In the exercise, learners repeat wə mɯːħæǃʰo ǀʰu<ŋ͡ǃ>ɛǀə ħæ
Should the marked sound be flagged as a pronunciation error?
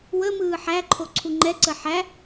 no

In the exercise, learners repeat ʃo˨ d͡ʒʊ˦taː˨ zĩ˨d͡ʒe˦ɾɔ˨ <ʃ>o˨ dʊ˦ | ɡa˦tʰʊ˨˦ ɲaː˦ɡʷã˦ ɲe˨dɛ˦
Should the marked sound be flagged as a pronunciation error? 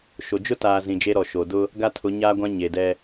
no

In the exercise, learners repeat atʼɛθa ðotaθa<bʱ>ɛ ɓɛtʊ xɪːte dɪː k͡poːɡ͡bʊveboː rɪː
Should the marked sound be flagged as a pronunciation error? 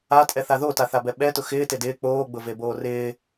yes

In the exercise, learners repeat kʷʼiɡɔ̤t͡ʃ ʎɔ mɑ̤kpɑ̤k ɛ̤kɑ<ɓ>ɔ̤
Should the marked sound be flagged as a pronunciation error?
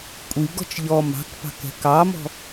yes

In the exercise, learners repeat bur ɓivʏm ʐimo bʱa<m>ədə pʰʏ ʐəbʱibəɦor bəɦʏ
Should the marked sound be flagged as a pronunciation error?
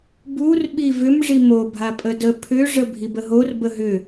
yes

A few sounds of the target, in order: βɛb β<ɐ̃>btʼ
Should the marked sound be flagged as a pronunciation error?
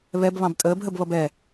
yes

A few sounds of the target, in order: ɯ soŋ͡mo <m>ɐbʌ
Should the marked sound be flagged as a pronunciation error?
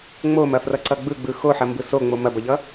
no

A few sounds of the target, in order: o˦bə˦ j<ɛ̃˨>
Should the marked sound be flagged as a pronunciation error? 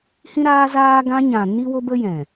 no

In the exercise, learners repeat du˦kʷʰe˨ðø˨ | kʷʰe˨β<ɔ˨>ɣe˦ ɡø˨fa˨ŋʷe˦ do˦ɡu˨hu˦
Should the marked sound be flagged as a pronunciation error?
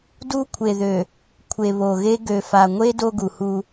yes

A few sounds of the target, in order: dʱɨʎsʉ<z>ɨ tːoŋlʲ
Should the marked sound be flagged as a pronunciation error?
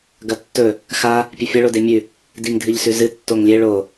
no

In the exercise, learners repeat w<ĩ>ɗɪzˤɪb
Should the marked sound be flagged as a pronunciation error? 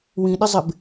no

